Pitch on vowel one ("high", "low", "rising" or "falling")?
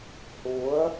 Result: rising